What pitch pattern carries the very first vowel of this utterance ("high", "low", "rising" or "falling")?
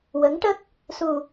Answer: rising